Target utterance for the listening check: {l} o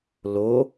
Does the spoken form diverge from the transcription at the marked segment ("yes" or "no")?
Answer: no